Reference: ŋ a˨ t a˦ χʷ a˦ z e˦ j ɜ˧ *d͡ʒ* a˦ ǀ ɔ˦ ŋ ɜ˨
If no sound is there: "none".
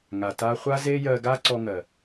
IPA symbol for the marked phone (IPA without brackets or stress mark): ɡ